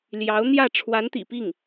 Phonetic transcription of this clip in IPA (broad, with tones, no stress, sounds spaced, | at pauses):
l j ɑ˧˥ ʊ̯ n̪ j ä˥˩ ʈ͡ʂʰ w a˧˥ n t̪ ḭ˨˩ p i˥˩ ŋ